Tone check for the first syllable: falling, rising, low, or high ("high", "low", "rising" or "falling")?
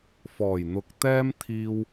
low